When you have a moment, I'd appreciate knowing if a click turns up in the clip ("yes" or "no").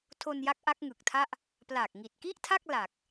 no